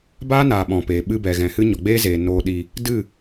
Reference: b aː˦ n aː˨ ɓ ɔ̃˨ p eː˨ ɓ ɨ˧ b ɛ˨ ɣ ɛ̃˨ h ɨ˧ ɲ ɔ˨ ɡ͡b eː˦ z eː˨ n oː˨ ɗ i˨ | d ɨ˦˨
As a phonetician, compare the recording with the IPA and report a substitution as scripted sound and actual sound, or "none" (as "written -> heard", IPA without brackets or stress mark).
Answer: none